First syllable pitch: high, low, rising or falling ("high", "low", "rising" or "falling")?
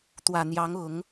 low